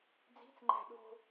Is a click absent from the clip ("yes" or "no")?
no